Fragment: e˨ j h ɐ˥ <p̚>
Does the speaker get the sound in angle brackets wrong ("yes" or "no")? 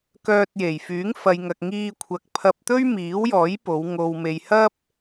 no